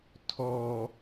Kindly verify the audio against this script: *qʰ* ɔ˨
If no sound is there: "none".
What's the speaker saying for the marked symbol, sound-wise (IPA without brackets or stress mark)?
tʰ